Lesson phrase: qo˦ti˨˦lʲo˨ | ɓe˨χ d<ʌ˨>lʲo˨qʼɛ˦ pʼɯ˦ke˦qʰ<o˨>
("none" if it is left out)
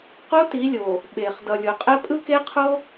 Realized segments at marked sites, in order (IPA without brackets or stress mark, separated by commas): ʌ˨, o˦